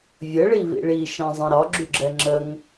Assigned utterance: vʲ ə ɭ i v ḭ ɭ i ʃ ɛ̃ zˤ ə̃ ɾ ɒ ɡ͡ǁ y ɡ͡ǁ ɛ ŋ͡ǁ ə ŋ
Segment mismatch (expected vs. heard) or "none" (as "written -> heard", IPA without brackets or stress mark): none